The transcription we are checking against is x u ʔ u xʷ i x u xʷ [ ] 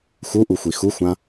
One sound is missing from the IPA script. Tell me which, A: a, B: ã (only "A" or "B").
B